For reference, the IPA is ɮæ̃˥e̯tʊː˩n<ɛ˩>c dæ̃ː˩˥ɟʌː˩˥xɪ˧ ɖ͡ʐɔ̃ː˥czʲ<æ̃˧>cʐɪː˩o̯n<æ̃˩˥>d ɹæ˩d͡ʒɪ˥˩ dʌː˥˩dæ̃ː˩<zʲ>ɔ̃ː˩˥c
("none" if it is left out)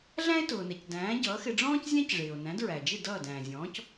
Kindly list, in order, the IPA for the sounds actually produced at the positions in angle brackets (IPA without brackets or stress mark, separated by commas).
ɛ˩, æ̃˥, æ̃˩˥, zʲ